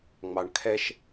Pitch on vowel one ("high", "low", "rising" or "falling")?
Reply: low